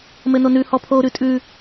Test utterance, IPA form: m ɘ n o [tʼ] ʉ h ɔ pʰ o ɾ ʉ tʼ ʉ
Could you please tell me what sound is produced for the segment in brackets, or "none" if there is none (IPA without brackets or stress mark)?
n